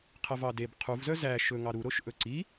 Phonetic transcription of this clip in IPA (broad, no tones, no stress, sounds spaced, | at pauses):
qʰ ɛ v ɑ d e b qʰ u v z œ z æ ʃ ɵ ŋ ɑ ɾ u ɾ o ʃ ʔ ɵ ǀ i